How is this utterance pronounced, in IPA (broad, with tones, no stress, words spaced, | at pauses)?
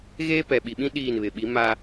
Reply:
ɣeː˦pɛ˨ɓi˨ɓĩ˦ ɗiː˦˨nβɪ˨ ɓi˨˦ma˦